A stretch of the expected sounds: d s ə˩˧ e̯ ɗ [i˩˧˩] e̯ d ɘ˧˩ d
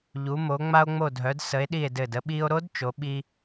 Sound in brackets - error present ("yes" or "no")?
yes